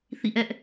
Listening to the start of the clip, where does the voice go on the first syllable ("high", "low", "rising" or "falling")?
falling